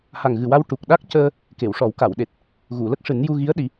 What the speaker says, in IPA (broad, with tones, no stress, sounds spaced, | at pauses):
h a˨˩ ŋ ɣ ɨ˨˩ w a˧ w ʈ u˨˩ k̚ ɗ a˦˥ k̚ c əː˧ | k e˨˩˨ w ʂ ɔ˨˩˦ w k a˨˩˨ w ɗ e˨˩ t̚ | ɣ u˨˩˨ l ə˦˥ k̚ ʂ ɨ˨˩˦ n j u˧ ɣ i˧˥ ə̯ ɗ i˨˩˦